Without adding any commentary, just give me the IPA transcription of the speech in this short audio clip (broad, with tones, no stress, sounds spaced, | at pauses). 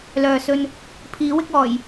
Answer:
l œː˨ s ɵ˧ n | pʰ iː˨˥ w ɪ˧ k̚ ɔː˨˩ j